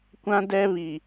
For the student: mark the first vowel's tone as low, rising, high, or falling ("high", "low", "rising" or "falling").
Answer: high